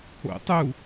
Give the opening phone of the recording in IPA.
o̰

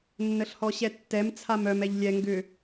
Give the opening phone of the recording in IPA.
nː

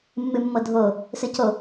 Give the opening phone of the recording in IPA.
mː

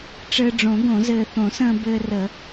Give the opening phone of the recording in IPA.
ʈ͡ʂ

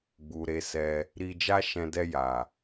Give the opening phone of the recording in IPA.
ɡ͡b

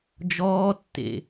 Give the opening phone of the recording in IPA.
d͡ʒ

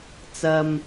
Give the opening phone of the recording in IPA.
t͡s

